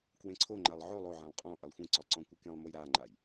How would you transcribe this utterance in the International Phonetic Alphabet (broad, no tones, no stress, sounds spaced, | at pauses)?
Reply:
k w ẽ ǀʰ o ŋ͡ǃ a lˠ ʕ o lˠ o ʕ ɛ̃ lˠ qʼ ɔ̃ ʔ ɛ lˠ xʷ ẽ ǀ ɔ lˠ ǀ ɔ̃ kʷ ɯ k ẽ lˠ m o j ɾ a ŋ͡ǃ a j